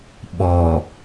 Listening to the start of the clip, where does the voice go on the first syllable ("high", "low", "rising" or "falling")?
low